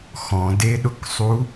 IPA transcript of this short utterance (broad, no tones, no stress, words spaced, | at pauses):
xɔ̃deɗʊksˤu